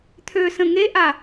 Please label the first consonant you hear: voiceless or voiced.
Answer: voiceless